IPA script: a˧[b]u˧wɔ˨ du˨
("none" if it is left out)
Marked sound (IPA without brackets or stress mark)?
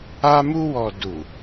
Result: m